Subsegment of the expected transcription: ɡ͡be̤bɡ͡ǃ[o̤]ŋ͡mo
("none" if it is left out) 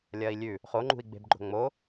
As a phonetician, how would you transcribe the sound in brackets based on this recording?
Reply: o̤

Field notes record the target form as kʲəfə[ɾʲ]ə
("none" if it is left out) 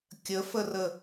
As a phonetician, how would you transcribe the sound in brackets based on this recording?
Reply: r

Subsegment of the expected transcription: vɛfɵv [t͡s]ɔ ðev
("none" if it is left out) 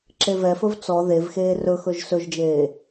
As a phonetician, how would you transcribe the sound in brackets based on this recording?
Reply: t͡s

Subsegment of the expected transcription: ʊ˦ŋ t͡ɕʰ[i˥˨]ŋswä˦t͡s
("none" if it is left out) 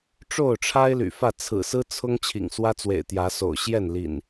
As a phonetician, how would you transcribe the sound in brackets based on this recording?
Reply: ḭ˨˩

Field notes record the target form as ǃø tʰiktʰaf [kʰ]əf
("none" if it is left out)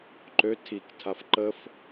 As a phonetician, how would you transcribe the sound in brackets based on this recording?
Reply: ǃ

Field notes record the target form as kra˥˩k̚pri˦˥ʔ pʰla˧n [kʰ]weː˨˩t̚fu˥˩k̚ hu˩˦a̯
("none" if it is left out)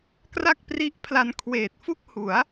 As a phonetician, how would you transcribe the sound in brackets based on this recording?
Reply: kʰ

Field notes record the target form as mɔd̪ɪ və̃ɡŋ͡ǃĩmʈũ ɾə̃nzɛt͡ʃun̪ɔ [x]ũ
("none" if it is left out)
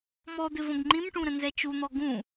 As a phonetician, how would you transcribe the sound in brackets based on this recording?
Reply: ɡ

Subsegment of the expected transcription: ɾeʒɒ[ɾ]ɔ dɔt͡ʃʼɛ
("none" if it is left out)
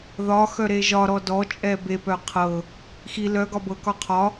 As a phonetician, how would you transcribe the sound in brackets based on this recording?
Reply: ɾ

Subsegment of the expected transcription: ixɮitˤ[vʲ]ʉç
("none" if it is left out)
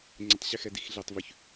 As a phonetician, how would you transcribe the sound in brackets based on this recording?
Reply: v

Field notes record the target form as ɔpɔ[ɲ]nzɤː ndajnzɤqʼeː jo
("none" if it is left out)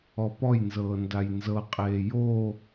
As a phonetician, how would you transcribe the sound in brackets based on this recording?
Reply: j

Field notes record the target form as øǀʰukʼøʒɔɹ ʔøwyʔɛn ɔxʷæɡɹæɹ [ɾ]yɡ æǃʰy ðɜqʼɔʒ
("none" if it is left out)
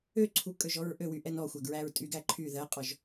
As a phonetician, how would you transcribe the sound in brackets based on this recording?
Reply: tʼ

